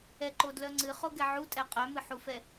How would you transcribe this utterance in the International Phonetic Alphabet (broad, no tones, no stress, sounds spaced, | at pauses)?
ɛ ǃ o d l œ ŋ͡ǀ ɨ χ o ɡ ɛ ʕ u tʼ ɛ qʼ œ m ɨ ħ u f ɛ